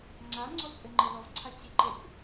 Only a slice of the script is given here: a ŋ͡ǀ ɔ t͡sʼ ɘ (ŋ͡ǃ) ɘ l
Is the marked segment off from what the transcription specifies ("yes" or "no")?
no